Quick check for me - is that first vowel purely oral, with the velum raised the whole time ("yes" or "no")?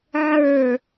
yes